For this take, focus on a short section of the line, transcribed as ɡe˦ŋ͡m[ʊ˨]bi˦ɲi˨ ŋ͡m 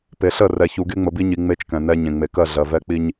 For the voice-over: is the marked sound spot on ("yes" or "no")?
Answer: no